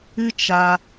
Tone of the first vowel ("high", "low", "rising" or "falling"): high